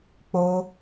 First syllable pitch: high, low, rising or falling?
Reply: high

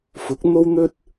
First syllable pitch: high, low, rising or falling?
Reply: rising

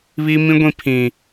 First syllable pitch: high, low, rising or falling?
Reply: high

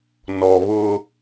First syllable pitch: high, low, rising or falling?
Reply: low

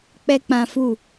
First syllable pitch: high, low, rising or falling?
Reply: high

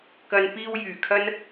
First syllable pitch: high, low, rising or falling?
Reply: low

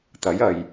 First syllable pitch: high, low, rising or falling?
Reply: rising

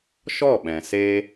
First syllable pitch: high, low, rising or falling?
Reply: falling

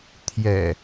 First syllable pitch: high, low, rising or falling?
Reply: low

